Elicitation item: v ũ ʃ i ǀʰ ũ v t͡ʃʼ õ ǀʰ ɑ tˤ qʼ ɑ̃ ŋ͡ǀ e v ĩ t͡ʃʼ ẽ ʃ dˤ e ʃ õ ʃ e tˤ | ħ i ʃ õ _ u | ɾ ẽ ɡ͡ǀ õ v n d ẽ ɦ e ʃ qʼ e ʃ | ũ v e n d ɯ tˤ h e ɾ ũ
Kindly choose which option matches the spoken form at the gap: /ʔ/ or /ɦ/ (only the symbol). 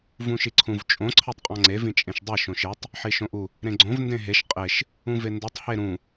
ʔ